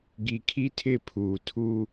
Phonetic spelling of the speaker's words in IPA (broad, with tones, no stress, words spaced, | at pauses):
ɡi˨kʰi˦tʰɪ˦˨pʰuː˨ tʰu˦